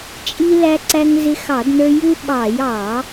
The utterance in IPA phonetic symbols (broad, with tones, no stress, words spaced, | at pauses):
t͡ʃʼi˧læ˧ǀæ˧ŋ zɪ˧xɑ˧˩˧dnə˞˧ ju˧ ɓɑ˧˩˧j ɑ˧˩˧